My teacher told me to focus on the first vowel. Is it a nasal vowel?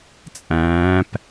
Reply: yes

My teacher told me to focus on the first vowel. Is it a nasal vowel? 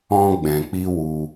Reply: yes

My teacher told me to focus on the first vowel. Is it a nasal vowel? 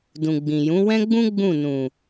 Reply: yes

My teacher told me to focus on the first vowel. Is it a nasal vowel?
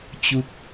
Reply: no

